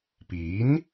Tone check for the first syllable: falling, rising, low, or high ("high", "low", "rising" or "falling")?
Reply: rising